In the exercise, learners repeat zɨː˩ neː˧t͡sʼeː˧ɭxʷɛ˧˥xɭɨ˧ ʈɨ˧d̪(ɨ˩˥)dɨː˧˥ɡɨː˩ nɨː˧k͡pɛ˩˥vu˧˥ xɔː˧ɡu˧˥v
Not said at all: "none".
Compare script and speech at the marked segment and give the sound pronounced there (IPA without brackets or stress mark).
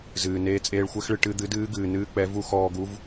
ɨ˩˥